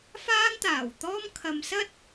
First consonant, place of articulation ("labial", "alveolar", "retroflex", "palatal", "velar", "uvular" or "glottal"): labial